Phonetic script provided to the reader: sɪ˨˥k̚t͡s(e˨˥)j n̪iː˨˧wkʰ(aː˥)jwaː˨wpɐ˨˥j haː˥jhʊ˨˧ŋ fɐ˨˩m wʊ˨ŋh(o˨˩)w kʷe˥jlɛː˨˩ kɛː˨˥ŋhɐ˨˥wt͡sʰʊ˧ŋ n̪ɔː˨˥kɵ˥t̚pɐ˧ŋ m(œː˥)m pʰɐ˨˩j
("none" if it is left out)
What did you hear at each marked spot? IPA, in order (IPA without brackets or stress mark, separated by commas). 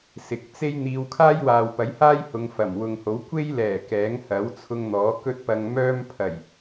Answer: e˥, aː˥, o˨˥, œː˥